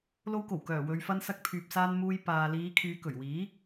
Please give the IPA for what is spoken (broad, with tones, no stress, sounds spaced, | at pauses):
l o˧ w k o˨˩ w k œː˨˩ w ɵ˨ ɥ f ɐ˧ n s ɐ˧ k̚ pʰ yː˨ p̚ s aː˧ n m uː˧ j p aː˨ l iː˨˧ kʰ yː˨˧ k ɵ˨˩ ɥ w iː˨˥